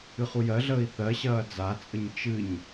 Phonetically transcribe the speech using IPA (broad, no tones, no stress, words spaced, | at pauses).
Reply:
ɨχujɜɮəːi̯ θɜɕɐː d͡zat͡sʼəɲ t͡ʃɨɲ